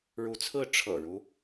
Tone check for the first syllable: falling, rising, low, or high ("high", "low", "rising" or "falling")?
rising